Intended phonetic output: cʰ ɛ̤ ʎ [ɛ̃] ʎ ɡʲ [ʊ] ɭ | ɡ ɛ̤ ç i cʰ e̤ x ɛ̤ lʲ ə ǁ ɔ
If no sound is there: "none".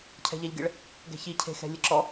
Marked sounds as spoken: ɛ, ə

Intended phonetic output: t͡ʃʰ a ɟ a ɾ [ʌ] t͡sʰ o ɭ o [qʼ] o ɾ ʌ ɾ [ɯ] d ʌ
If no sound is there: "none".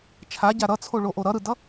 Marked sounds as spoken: ʌ, ʔ, ɯ

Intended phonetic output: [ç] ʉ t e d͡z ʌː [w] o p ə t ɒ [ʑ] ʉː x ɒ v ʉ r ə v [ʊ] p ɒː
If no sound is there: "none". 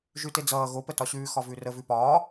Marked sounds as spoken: ʒ, ɣ, ɕ, ʉ

